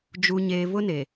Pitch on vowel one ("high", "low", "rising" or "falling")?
low